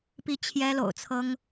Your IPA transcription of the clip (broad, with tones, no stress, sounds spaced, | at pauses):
p i˥˩ t͡ɕʰ j ɛ˥ l o̰˨˩ ʊ̯ t͡sʰ ɤ˥ ŋ